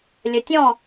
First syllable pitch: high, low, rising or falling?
low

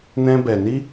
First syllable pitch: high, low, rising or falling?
high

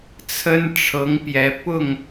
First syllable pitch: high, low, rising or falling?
high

